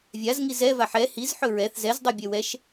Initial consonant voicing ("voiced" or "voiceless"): voiced